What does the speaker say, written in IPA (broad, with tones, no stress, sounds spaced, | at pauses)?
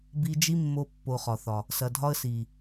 b i˧ d͡ʒ i˦ mː o˧ pː o˨ χ ɒ˨ θ ɒ˨ | s ɐ˨ dʱ ɒ˦ ə̯ s i˨